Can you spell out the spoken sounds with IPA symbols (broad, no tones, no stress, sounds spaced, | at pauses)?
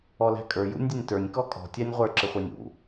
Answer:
ɔ l æ̤ kʼ ə˞ j ṵ nʲ dʲ ə nʲ t ə˞ nʲ k ɔ kʼ ɔ̤ tʲ æ nʲ ʁʷ ə˞ ǁ ɪ χʷ æ nʲ ṵ